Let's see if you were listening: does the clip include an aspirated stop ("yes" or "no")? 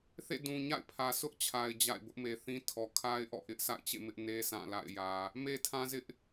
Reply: yes